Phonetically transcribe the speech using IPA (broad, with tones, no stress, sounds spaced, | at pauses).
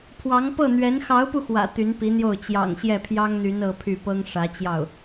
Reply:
pʰ w ɑ˧˥ ŋ p ɤ˥˩ n̪ ɥ ɛ˧˥ n x ɑ˧˥ ʊ̯ p u˧ x w ä̰˨˩ t̪ y˧˥ n p i˧˥ n̪ j o˥˩ ʊ̯ t͡ɕ j ɑ̰˨˩ ŋ ɕ j ɛ˥˩ pʰ j ɑ˥ ŋ n̪ y˧˥ n ɤ˥ pʰ y˥˩ p ɤ˥ ŋ ʂ ä˧˥ t͡ɕ j ɑ˥˩ ʊ̯